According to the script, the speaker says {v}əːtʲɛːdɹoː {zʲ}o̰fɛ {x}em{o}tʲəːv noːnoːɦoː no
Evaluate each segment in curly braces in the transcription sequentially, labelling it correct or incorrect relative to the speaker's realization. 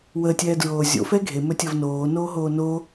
incorrect: w, correct, incorrect: ɡʱ, incorrect: ɵ

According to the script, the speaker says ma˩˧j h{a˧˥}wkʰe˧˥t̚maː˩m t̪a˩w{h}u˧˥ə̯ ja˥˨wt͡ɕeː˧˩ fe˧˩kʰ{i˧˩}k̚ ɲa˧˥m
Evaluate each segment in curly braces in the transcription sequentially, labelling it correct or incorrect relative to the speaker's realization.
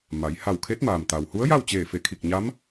incorrect: a˧˩, correct, correct

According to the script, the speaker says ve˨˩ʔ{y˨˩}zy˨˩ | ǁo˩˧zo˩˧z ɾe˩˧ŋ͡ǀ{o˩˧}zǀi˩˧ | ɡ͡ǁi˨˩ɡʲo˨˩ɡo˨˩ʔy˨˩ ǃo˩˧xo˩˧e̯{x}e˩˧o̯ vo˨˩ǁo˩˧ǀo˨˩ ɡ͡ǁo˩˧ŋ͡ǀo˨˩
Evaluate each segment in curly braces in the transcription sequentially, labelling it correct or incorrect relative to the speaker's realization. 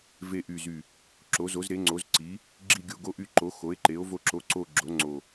correct, correct, incorrect: ǃ

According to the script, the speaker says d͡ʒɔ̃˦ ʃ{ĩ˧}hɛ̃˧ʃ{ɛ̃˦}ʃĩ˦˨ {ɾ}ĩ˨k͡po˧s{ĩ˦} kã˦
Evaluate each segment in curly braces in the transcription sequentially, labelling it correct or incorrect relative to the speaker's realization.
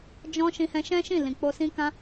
correct, correct, incorrect: l, correct

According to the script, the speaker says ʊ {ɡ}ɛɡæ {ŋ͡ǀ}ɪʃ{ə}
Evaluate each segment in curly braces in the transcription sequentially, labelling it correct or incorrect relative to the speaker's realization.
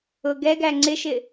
correct, correct, incorrect: ɪ

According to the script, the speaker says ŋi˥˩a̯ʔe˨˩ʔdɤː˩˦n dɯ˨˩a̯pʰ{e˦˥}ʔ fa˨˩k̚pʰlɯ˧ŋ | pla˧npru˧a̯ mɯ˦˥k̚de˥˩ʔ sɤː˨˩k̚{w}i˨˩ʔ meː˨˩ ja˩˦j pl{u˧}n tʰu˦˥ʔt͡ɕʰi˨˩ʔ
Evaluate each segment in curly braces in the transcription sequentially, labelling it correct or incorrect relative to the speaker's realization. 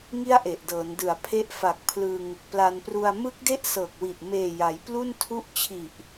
correct, correct, incorrect: u˥˩

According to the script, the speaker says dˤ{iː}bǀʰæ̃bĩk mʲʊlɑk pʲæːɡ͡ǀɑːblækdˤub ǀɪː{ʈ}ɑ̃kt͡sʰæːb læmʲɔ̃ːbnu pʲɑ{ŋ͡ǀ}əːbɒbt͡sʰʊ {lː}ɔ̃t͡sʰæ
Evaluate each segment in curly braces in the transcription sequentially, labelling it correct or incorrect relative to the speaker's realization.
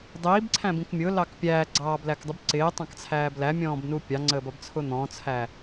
correct, incorrect: tˤ, correct, incorrect: n̪

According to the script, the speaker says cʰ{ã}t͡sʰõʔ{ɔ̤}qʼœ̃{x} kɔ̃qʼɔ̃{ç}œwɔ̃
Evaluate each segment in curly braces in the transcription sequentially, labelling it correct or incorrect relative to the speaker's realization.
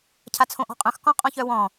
incorrect: a, correct, correct, correct

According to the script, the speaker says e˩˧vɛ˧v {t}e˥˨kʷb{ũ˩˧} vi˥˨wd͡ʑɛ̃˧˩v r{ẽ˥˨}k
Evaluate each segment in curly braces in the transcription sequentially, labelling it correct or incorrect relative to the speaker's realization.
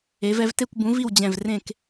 correct, incorrect: ũ˨˥, correct

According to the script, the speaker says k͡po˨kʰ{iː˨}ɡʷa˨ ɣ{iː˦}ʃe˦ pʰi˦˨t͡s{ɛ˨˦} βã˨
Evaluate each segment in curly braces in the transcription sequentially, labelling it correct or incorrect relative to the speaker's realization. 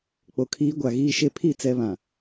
incorrect: iː˨˦, correct, correct

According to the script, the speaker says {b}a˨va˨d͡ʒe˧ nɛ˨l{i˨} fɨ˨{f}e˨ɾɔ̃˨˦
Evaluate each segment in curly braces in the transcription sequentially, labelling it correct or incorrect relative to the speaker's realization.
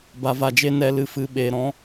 correct, incorrect: ɨ˨, incorrect: ɓ

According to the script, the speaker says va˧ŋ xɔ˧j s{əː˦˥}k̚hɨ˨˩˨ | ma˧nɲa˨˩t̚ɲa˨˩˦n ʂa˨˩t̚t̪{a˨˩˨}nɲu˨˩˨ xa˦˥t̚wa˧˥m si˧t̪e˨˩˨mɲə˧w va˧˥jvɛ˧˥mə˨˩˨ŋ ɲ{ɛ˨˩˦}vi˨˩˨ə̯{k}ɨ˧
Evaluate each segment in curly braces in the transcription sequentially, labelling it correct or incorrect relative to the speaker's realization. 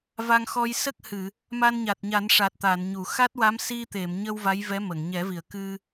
incorrect: ə˦˥, correct, correct, correct

